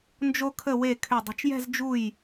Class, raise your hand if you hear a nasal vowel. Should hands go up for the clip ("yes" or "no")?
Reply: no